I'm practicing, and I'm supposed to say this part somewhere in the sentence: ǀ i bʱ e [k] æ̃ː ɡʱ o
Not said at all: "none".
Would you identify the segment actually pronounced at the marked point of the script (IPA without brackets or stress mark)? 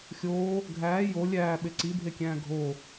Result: kʲ